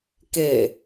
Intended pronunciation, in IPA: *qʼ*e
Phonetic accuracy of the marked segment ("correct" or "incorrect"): incorrect